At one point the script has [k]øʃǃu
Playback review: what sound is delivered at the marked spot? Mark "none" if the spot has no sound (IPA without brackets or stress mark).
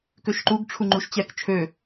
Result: k